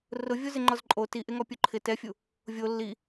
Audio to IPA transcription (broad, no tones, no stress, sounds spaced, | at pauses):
r ʊ vʲ o z ɪ ŋ͡ǃ ɔ z ǃʼ o t i ʔ e ŋ ɔ pʲ u ǃʰ ɪ t ɛ fʲ u | vʲ o lː i